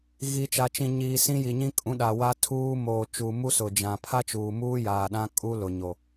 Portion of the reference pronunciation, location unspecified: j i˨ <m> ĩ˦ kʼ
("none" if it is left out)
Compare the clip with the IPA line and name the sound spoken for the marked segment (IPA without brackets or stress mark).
ɲ